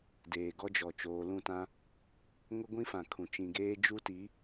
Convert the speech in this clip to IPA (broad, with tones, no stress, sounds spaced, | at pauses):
d eː˨ ɡ ɔ˦ d͡ʒ ɔ˨ t͡ʃ oː˨ l ũ˦˨ t ã˦ | ŋ ʊ˦ ɡʷ ĩ˦ f ã˨ kʰ ũ˨ t͡ʃ ĩ˨ ɡ eː˦ d͡ʒ u˦ t i˨˦